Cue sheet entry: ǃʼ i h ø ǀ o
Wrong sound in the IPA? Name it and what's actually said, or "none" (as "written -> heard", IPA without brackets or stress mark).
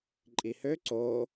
none